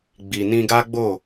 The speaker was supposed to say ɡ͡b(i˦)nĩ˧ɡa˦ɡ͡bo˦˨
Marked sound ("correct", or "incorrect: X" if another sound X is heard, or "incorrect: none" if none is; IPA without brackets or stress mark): incorrect: i˨